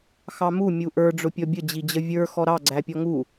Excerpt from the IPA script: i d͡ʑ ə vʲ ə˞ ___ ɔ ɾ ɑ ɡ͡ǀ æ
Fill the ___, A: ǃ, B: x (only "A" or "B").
B